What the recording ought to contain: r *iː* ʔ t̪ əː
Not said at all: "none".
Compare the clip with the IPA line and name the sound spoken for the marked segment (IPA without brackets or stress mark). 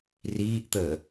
iː